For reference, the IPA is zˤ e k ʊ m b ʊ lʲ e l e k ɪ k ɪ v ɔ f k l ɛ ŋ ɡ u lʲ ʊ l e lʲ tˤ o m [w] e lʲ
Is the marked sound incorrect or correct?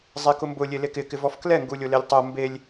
incorrect